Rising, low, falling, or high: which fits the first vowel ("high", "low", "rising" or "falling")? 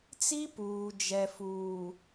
high